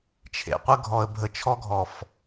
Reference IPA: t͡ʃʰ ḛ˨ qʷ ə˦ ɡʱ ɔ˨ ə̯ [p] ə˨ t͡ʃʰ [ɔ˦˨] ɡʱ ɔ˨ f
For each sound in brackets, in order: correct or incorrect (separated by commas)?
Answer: incorrect, incorrect